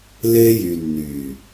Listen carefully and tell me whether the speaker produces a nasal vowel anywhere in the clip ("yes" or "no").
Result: no